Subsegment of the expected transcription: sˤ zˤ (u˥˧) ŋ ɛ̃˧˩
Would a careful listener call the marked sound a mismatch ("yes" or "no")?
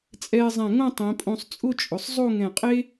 yes